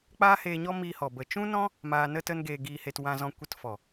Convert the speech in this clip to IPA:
k͡p aː˦ h eː˧ ɲ ɔ˦ m iː˧ h ɔ˨ b ə˨ t͡ʃ ũ˦ n ɔ̃˦ | m aː˧ n ə˦ t ə˦ n ɡ eː˧ ɡ iː˧ h e˧ t w ã˧ z ɔ̃˧ kʷ ə˦ t f ɔ˨

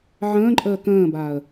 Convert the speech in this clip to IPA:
ʕ ə̃ː ǃʼ əː k ə̃ː b aː ə̯

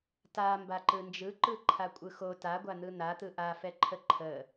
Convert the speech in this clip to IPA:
t a m b a ǃ ɯ n d͡ʒ ɯ ǃ ɯ ǃʰ a kʷʼ ɯ x o t a ɡʷ a n̪ ɯ n̪ a t̪ ɯ ʔ a f ɛ ǃʰ ə ǃʰ ə

